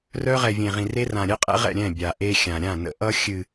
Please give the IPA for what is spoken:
r œ˦ ʁ ɛ˨ vʲ ẽ˨ ʁ ĩ˨ r e˦ r ã˨ ɾʲ ɛ˦ qʼ ɛ̰˦ ʁ ɛ̰˦˨ ɾʲ ɛ̃˦˨ bʲ a˨ ʔ e˦ xʲ ã˨ ɾʲ ã˦˨ n ə̰˨ ʔ ʌ˦ xʲ ɨ˨

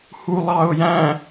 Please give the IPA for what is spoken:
h u lˠ ɑ ʊ̯ j æ̃

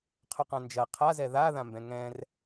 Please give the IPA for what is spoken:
qʰ ɵ q ã n d͡ʒ ɐ qʰ a z ɛ ð a ð ã m b ɛ̃ ŋ ɛ̃ r

